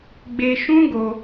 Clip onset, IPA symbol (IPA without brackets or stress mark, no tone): ɡ͡b